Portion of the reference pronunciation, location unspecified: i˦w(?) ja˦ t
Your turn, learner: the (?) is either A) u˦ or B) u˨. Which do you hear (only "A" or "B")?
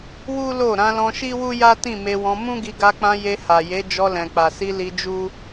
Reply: A